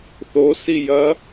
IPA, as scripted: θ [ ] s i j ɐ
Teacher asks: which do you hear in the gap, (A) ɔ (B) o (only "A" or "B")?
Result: B